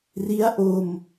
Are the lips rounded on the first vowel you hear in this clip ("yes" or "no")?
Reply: no